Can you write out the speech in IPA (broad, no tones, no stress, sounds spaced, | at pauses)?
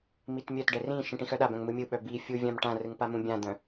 m i t mʲ œ t ɖ ɛ r ĩ ʃ ĩ ʈ ĩ x œ ɗ a b œ̃ ŋ m ɯ mʲ ɯ ɓ œ b i fʲ u vʲ ã m ʈ ã r ɯ ŋ p a m ũ bʲ ã d̪ œ̃